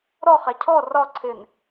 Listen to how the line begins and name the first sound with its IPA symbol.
ɾ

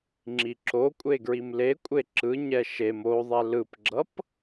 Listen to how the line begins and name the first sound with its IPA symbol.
ŋ͡ǁ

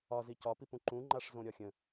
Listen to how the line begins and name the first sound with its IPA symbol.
ɒ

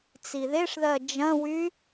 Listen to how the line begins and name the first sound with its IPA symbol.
t͡s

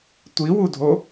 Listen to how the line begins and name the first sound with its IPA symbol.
tʷ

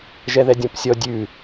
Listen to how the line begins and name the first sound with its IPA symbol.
ʒ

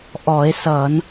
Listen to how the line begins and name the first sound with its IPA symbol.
ʔ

